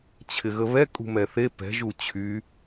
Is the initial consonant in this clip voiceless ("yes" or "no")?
yes